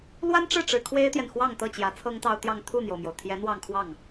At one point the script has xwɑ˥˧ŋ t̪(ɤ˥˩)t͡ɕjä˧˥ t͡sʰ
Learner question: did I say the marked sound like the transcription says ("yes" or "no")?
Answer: yes